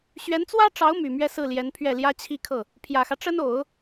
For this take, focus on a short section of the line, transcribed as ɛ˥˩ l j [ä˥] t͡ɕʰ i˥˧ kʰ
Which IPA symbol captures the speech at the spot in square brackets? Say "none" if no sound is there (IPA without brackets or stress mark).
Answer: ä˥